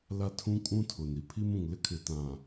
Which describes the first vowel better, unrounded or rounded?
unrounded